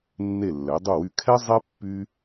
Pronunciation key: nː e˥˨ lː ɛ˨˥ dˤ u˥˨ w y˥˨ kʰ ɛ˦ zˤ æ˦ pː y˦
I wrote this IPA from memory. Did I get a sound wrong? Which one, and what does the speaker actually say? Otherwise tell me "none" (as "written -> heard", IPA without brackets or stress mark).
æ˦ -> ɛ˦